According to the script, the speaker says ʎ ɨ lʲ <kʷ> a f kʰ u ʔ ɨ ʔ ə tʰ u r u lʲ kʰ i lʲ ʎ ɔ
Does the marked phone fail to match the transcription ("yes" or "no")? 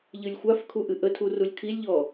yes